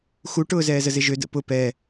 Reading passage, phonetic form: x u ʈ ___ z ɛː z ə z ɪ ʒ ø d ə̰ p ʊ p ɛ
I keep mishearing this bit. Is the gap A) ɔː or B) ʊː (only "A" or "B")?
B